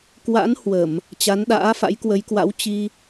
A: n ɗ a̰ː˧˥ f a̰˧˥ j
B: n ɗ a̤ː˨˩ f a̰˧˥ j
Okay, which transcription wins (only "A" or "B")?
A